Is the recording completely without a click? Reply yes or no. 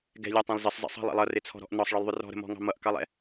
yes